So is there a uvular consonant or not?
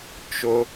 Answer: no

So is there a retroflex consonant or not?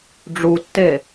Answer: yes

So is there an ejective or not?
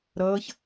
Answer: no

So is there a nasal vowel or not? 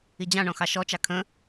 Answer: yes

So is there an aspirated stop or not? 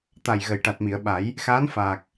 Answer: no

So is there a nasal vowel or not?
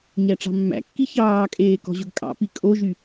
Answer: no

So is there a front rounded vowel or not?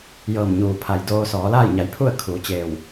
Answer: no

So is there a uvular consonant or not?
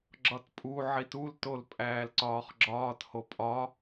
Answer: yes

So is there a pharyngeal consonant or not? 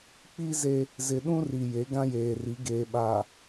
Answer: no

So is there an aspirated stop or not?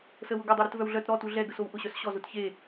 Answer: no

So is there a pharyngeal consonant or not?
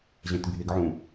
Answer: yes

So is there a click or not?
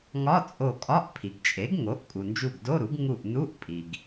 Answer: no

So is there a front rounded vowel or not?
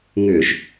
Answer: yes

